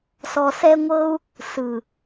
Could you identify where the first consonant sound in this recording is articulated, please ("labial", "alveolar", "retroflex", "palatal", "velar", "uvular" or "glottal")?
alveolar